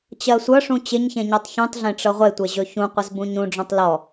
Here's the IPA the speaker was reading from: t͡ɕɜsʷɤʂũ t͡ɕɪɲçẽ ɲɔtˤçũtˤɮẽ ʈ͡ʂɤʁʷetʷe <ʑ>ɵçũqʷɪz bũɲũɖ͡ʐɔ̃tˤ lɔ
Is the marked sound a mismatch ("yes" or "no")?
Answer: no